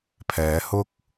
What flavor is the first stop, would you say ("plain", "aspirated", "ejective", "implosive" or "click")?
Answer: aspirated